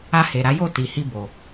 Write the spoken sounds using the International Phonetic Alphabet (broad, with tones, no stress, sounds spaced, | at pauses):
a˧ h e˨ ɾ a˨˦ j o˦˨ t i˨ h i˧ b o˨